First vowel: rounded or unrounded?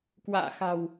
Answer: unrounded